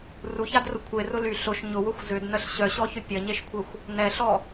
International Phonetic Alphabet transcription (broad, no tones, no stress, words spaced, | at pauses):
ruçadrʊ kʷʰerʊ ly ɬʊʃ ɲʊwʊxʷ zʏdnəɬ ɕœɕɔçʏ pʲɐɲeʃkʷʰɛxʷ | nɛɬɔ